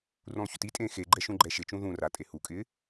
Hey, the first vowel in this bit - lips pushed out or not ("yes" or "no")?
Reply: yes